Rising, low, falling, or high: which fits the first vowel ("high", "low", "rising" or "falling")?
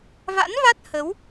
rising